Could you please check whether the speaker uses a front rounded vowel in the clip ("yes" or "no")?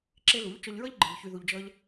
yes